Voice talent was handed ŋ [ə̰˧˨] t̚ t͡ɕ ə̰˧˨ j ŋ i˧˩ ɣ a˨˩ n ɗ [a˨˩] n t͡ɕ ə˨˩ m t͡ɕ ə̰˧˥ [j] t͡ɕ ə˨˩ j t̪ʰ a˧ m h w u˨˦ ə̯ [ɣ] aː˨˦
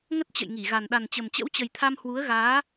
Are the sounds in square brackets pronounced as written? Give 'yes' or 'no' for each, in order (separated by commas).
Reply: no, yes, no, yes